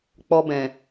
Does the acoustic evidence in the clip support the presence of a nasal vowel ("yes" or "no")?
yes